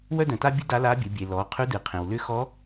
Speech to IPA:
w œ˥ d œ̃˩ t a˥ bʲ ɨ˥ d a˧˥ l a˧˥ bʲ ɨ˩˧ bʲ e˩ l ɔ˩˧ qʰ ʉ˧˥ d ɨ˩ qʰ ẽ˩ w l ʏ˧˥ x ɔ˧˥

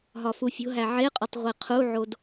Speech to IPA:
ɦ ɒ f u fʲ o̤ ɦ æ ʕ e qʼ ɒ tˤ ʁʷ i qʰ u ʕ o d

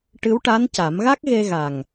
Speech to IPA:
ʈ ɨ˧˥ w ʈ a˧˥ n c a˨˩˦ m ɣ a˦˥ k̚ ɣ e˧ ɣ a˨˩ ŋ

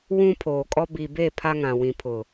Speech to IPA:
w ũ˦ pʰ oː˨ kʼ ɔ˦ b i˨ b e˦˨ pʰ a˦ ŋ ã˨ w ĩ˨ pʰ ʊ˨

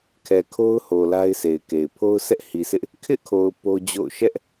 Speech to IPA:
kʰ ɛ˨ kʰ o˦ ʊ̯ h o˨ l a˦ ɪ̯ sʰ e˨ ɪ̯ k e˨ ɪ̯ pʰ o˦ ʊ̯ s ɛ˦ ʔ h i˨ s ɪ˦ ʔ | kʰ ɪ˦ ʔ kʰ o˨ ʊ̯ p o˦ d͡ʑ o̰˦˨ ʊ̯ ʃ ɛ˦ ʔ

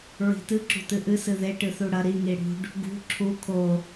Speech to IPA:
ɹ i̤ t ɨ ǁ ṳ t ɨ ʔ ɨ s ɨ ð e ʈ ɨ θ u ɽ ɐ ɾ i ŋ i ɽ ṳ ɖ | ɡ ṳ ǁʰ u kʰ o

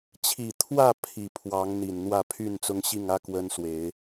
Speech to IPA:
t͡ɕʰ i˨˩ t̪ʰ w ä˥˨ pʰ i˨˩ pʰ w ɑ˨˦ ŋ n̪ i˨˩ n n̪ w ä˥˨ pʰ y˥˨ n t͡s ʊ˦ ŋ ɕ i˥˨ ŋ ä˦ k w ə˦ n s w e˨˦ ɪ̯

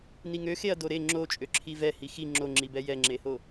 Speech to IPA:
n i ŋ ø x e ɐ̯ d o ɾ e ŋ͡ǁ o t͡ʃʼ ø ǁʰ i v ɛ h i x i ŋ͡ǁ o ŋ͡ǁ i b ɛ j ɛ ŋ͡ǁ e h o

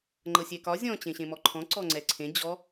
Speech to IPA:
ŋ͡ǃ ɤ sʲ ɛ k ɒ zʲ ɔ̃ t͡ɕ ẽ ɕ ẽ m ɔ ǃʰ ɔ̃ ǀ ɔ ŋ͡ǀ ɛ ǀʰ ẽ d͡ʑ ɔ

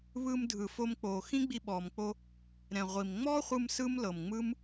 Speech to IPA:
β ɯː˧ m dʱ ɯ˩ f o˧ m k͡p oː˩ x ĩ˥ ɡ͡b i˧ ɓ ɔː˩ m k͡p o˧ | ɾ ɛ̃˩ ʁʷ i˩ m ŋ͡m ɔː˥ χʷ ɯ˧ m s ɯ˥ m l ɤ˩ m ŋ͡m ɯ˥ m

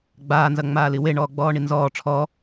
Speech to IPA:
ɡ͡b aː n z ɐ ŋ͡m aː l i w e ɳ ɔː ɡ͡b ɔː ɳ i n z ɔː ʈ͡ʂʰ ɔ

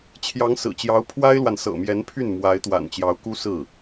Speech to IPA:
t͡ɕʰ j ɑ˧˥ ŋ s ɹ̩˨˩ t͡ɕ j ɑ˧˥ ʊ̯ pʰ w a˥ ɪ̯ l w a˨ n s ɤ̰˨˩ m j ɛ˧˥ n pʰ y˥˩ n m w a˧˥ ɪ̯ t̪ w a̰˨˩ n t͡ɕ j ɑ˧˥ ʊ̯ k u˥ s ɹ̩˥˩

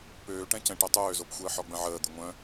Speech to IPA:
p øː ʈ ɛ̃ c ɛ̃ ʈ ɛ tˤ øː z o p xʷ əː ħ ɔ ɡ͡b ə̃ ʕ əː d̪ ʏ ŋʷ œ̃

